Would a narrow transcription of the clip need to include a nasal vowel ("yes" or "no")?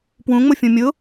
yes